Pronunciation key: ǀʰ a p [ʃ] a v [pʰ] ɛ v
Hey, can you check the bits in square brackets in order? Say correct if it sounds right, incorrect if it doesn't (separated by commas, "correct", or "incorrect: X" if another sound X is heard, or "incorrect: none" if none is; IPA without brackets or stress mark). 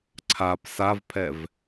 incorrect: s, correct